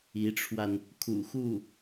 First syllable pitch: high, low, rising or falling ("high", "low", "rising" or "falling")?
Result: rising